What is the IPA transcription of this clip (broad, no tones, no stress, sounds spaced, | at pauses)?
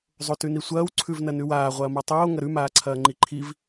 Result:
zˤ o t ʉ n i sʷ ɐː w ǀʰ ʉ v n ɐ n ʉ w aː ʁʷ ɐː m a tˤ oː ŋ ɐ ɾ ʉ m aː ǀʰ ɐː ŋ͡ǃ i ǃʰ i v